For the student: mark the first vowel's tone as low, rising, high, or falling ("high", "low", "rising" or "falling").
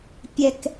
high